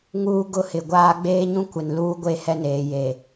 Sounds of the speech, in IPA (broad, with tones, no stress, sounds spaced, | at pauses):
ŋ uː˦ ɡ ʊ˦ h ɪ˨ ɡʷ aː˦ ɡ͡b eː˦ ɲ ũ˦ kʷ ɪ˨ n l uː˦ ɡʷ e˦ h ɛ˦ n eː˨ j e˨